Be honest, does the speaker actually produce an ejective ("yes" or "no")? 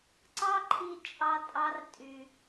yes